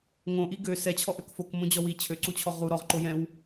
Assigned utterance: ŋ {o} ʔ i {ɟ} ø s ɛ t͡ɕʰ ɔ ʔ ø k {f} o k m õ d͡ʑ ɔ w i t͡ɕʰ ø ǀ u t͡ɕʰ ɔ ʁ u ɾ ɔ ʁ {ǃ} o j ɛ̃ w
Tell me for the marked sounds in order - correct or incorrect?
incorrect: õ, incorrect: ɡ, correct, correct

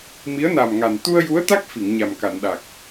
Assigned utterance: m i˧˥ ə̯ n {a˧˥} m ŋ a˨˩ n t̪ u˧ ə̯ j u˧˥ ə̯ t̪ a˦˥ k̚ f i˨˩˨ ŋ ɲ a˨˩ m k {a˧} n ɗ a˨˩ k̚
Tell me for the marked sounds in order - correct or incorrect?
incorrect: a˨˩, incorrect: a˨˩˨

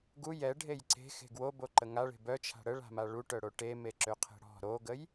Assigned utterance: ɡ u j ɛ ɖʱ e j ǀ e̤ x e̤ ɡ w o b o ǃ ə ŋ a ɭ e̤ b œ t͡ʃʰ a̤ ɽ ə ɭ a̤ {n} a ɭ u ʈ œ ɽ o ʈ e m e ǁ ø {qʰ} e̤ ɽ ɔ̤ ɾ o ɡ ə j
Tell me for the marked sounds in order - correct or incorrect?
incorrect: m, correct

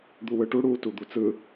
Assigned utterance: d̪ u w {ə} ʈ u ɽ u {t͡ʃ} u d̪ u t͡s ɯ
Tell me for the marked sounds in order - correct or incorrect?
incorrect: ɯ, incorrect: t

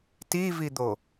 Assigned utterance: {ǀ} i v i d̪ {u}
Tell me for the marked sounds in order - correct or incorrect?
incorrect: t, incorrect: o

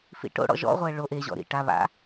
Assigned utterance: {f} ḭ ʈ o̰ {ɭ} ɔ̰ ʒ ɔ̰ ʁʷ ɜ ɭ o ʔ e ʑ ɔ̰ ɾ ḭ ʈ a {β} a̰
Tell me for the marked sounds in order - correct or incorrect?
correct, incorrect: ɽ, correct

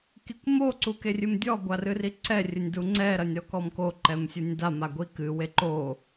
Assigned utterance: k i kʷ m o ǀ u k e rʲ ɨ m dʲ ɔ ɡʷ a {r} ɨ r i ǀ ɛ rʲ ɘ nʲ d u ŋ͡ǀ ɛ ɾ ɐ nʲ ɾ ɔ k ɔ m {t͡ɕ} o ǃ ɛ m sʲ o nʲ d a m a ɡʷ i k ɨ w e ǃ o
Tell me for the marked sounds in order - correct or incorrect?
correct, incorrect: k

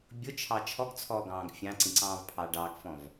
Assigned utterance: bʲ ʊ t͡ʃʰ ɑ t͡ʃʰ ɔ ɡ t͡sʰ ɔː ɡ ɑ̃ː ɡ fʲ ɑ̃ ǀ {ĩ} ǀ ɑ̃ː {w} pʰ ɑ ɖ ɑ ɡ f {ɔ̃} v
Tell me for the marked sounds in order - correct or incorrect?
correct, incorrect: v, correct

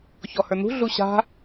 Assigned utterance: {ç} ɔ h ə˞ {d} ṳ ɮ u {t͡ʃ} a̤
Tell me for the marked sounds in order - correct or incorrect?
correct, incorrect: n̪, incorrect: ɕ

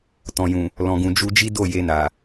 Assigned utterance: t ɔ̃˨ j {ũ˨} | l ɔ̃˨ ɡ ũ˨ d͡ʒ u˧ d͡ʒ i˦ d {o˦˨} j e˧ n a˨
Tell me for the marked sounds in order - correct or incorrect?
correct, correct

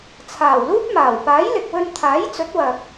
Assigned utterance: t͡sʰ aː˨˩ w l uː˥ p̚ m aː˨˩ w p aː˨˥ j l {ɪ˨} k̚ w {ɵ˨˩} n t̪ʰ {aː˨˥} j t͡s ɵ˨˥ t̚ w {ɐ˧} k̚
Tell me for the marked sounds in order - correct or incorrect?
correct, incorrect: ɵ˧, correct, incorrect: ɐ˨

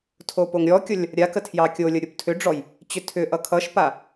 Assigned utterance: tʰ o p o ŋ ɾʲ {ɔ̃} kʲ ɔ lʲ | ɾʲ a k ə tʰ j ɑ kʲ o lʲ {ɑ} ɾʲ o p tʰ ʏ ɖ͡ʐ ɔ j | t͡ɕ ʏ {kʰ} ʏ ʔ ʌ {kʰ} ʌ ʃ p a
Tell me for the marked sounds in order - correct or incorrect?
incorrect: ɔ, incorrect: ʌ, incorrect: tʰ, correct

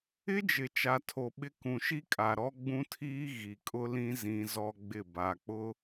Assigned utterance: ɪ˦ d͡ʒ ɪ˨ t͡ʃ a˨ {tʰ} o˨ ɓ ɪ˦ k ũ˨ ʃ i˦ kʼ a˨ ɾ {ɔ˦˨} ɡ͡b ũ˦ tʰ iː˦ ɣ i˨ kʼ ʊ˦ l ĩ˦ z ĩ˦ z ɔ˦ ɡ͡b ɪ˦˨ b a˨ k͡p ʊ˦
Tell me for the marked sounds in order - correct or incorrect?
correct, incorrect: ɔ˦

